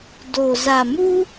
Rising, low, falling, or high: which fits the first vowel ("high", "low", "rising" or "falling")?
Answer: low